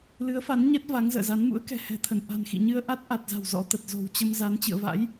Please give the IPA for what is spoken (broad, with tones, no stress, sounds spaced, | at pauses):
l ɨ˨˦ ə̯ f a˨˦ n ɲ ɛ˦˥ t̚ v a˨˦ ŋ z ə̰ː˧˨ z a˨˦ n m ṵ˧˥ ə̯ k ɛ̤˨˩ h ɛ̤˨˩ t̪ʰ ə˧˩ n ʔ a̤˨˩ n x ḭ˧˨ ɲ ɨ˧ ə̯ ʔ a˦˥ t̚ ʔ a˨˩ t̚ z a̤˨˩ w z ɔ̰˧˥ t̪ ə˨˩ t̚ z o̤˨˩ w t͡ɕ ə˧ m z a˨˦ n t͡ɕ ɨ̰˧˨ ə̯ v a̰˧˥ j